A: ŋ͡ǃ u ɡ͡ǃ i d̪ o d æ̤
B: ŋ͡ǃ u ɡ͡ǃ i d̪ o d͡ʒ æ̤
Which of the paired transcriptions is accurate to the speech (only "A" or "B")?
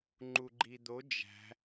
B